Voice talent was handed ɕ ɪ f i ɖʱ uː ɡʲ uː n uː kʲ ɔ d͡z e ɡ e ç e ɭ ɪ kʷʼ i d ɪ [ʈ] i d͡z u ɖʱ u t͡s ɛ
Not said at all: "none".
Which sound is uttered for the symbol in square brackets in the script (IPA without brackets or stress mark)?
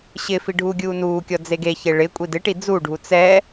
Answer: ʈ